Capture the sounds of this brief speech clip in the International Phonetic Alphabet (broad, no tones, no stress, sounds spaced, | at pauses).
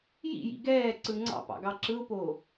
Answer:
j ḭ j ḭ ɡ ɛː ǀ ɯ ŋ͡ǀ ɑ̰ p ɑ̰ ɡ ɑ ǁ ɯ ʊ̯ p oː